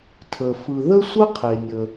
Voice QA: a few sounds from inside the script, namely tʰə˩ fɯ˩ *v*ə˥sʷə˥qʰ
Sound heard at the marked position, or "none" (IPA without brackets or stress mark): ð